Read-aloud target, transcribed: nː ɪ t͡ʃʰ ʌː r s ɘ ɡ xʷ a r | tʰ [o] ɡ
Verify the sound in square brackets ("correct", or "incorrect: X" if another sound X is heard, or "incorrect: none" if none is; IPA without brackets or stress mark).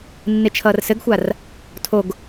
correct